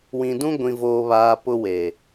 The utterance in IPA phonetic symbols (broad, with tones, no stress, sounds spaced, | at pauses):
w ĩ˨ d ũ˦ ɡʷ ĩ˨ v oː˨ β aː˨ p ʊ˦ w eː˨